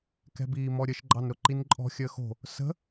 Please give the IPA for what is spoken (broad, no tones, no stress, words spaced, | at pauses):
kɛ̤biːmɔɾʲəʃ ɡ͡ǃɑnɾʊǃinǃʼɔ̤ xʲəxo̤ | sə̤